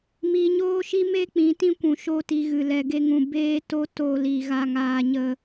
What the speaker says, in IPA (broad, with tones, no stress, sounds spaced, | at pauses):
m iː˧ ɲ oː˦ ʃ i˦ m e˦ k͡p ĩ˨˦ t ĩ˦ kʷ ũ˨ ʃ o˦ t i˧ ɣ ɨ˨ l ɛ˨ ɡ e˧ ŋ ũ˨ b eː˧ t o˧ t o˨ l i˨ ɣ a˨ ŋ aː˨ ɲ ə˨